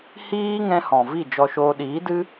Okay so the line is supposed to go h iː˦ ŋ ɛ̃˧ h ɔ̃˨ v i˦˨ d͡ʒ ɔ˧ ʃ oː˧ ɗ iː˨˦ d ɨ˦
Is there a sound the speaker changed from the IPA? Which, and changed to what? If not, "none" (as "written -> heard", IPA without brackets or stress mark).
none